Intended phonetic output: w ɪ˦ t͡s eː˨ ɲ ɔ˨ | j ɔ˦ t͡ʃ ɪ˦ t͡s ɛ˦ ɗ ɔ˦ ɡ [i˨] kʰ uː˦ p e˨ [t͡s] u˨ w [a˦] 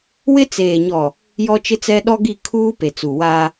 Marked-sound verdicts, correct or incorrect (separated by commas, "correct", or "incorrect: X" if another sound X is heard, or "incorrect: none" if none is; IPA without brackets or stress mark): incorrect: i˦˨, correct, incorrect: aː˦